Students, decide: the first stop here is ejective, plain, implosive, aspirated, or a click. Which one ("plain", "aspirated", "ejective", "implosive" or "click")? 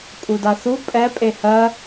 ejective